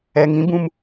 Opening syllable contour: low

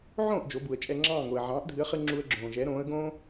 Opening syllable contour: falling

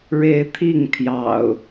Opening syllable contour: rising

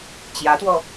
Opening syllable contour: rising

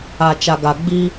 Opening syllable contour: low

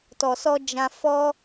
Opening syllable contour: low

